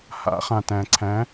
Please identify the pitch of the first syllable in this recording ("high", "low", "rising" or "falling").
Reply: rising